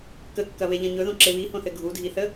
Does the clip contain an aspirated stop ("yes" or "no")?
no